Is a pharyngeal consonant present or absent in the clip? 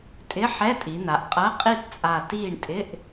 present